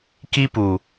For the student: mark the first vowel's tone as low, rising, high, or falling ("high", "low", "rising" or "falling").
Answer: high